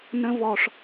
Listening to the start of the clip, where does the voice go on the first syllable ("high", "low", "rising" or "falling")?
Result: high